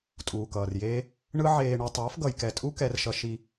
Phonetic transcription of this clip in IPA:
tʼ uː˨ k ʌː˨ r j eː˦ | ɳ ɯ˦ ʕ eː˧ ɳ u˧ tˤ ʌː˨˦ f ɡ ʌ˨ j k ɛ˨ tʼ u˦ k ɛ˦ r ʃ ʌ˦ ʃ i˧

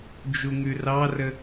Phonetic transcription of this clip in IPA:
d͡ʒ u ŋ ʉ r ɑ r ə

